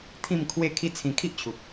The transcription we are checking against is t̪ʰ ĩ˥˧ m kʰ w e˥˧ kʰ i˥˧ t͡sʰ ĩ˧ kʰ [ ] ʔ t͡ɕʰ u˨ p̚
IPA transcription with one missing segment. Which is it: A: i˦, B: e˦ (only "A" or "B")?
A